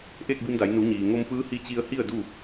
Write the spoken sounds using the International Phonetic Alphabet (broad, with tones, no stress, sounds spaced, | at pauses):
ʔ eː˥˨ k̚ b i˧ m d a˩˧ j n u˩˧ ɲ iː˩ ŋ o˧ m p ɯː˧˥ h i˧˥ t͡ɕ i˧ ə̯ h i˥˨ ə̯ d u˥˨